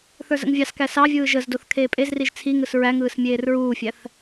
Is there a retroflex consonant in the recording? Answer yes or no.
no